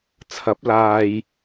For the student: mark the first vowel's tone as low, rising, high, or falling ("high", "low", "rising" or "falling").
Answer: rising